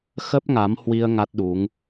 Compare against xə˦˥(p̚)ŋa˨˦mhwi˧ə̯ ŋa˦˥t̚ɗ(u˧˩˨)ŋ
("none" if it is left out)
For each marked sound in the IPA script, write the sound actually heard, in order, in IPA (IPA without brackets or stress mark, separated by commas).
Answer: p̚, u˨˦